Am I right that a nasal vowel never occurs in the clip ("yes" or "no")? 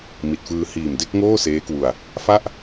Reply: yes